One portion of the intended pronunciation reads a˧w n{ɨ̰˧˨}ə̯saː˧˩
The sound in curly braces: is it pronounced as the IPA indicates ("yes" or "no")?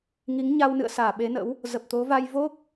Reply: yes